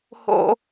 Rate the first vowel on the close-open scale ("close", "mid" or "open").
mid